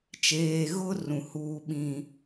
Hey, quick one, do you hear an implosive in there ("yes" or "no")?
yes